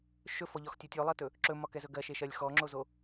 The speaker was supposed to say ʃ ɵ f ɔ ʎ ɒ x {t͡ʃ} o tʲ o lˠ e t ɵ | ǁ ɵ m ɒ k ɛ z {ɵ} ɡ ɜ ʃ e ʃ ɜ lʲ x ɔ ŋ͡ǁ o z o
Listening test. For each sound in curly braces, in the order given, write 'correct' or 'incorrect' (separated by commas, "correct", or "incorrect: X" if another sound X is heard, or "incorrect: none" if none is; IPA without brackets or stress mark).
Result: incorrect: tʲ, correct